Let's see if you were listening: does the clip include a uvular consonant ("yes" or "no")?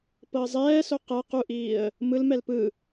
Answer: yes